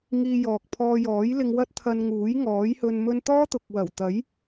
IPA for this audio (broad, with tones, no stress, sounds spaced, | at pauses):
ŋ iː˧ j ɔː˨ k̚ pʰ ɔː˧ j ɔː˨˥ j l ɪ˧ ŋ w ɐ˥ t̚ t̪ʰ ɐ˧ n ŋ uː˨˥ j ŋ ɔː˨˥ j h ɵ˧ n m ɵ˥ n t̪ ɔː˥ t̪ ʊ˨ k̚ w ɐ˨˩ w t̪ ɐ˨˥ j